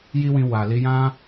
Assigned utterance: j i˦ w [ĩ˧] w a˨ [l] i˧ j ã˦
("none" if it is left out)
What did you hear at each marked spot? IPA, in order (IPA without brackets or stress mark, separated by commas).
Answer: ĩ˧, l